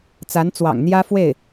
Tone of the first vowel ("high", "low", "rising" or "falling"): rising